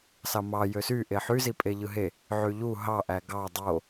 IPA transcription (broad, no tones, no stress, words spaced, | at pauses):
sɑmɑ jøsy ʔeħy zipʼeʎɯɦe | ʕyʎu ɦɑ ʔæɡɑ dˤo